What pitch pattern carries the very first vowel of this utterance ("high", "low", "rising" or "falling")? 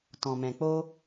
low